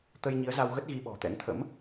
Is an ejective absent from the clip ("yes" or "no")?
yes